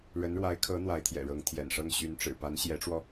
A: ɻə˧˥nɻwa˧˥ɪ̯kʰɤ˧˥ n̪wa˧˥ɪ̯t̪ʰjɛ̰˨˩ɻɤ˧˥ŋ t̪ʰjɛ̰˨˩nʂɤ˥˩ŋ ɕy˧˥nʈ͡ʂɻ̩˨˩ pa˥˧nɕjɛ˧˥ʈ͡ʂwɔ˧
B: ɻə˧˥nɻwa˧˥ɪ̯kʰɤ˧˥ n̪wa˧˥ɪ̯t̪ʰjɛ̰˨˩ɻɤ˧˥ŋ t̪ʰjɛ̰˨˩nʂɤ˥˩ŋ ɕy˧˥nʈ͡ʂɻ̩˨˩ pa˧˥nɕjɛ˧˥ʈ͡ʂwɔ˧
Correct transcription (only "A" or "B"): B